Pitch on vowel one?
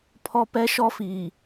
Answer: high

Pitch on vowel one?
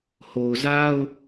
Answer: low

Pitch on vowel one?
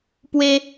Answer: high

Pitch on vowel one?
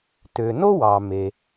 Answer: low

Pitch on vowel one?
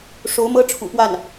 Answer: rising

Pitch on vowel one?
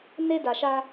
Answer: high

